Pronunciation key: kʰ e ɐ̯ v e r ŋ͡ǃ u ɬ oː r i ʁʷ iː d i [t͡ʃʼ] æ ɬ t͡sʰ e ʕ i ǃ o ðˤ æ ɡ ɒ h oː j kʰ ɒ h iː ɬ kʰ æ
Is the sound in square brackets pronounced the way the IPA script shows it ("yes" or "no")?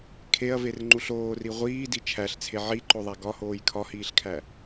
no